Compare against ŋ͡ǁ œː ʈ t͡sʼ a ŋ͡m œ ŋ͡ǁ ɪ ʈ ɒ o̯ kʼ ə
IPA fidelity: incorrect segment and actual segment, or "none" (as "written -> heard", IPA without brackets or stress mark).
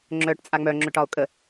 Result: ɪ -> ʏ